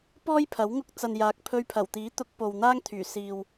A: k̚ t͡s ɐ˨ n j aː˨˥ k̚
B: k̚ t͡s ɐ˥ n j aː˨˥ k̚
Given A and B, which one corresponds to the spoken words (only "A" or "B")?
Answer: A